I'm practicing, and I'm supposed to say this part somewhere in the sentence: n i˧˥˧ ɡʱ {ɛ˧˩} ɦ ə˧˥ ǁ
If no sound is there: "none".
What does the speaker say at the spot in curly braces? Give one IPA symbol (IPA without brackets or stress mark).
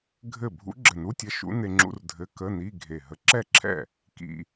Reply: e˧˩